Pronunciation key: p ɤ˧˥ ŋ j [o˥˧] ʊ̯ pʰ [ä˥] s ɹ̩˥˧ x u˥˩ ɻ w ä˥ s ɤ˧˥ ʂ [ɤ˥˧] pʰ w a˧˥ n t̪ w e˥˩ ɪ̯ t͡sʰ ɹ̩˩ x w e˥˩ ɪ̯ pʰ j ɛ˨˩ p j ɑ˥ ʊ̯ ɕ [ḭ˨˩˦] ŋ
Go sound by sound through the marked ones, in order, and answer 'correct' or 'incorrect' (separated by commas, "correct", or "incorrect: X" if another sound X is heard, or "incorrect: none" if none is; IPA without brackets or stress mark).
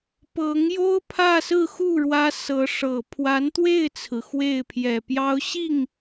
incorrect: o˥, incorrect: ä˥˧, incorrect: ɤ˨˩, incorrect: i˥˩